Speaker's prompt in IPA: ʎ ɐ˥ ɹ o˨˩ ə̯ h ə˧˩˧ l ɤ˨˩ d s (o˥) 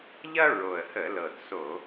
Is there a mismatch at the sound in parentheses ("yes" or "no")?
yes